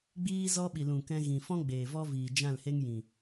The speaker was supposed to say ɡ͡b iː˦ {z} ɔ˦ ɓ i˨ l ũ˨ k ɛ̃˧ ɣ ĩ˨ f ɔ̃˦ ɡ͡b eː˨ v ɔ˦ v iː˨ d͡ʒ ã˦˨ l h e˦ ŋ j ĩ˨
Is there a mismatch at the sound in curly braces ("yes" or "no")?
no